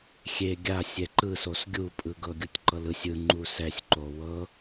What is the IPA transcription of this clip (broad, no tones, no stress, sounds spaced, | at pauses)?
xʲ e ɡʲ a sʲ ɛ ǃ ɯ s o s ɡʲ u pʼ ɯ ɡ ɤ ɡʲ u tʲ ǃ ɤ l ɯ sʲ ɯ ŋ͡ǃ u s ɛ sʲ ǃ o w ɤ